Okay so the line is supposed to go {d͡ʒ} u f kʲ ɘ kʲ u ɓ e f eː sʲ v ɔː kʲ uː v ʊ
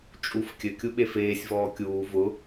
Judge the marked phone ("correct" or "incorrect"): incorrect